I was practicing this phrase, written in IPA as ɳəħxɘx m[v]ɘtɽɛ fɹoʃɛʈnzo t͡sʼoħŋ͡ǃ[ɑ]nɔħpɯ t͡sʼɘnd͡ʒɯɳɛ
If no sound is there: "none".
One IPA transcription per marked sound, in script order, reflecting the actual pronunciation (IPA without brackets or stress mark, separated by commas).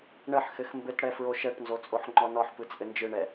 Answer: b, ɔ